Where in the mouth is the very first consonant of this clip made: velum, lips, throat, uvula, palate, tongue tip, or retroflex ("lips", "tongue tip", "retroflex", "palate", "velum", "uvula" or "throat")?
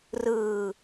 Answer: tongue tip